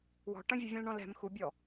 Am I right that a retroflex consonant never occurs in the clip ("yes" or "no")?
no